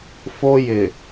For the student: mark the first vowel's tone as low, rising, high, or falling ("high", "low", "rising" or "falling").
high